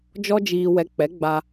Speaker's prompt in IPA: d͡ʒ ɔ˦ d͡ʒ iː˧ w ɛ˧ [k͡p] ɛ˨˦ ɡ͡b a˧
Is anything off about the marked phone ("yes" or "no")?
no